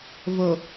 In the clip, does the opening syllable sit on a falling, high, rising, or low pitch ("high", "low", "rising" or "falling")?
low